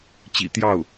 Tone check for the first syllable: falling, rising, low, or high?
low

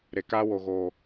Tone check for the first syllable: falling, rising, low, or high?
low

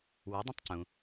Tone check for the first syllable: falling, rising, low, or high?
rising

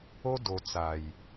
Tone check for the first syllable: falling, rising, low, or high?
high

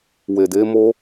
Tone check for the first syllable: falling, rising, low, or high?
low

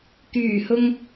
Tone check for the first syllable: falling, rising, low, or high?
low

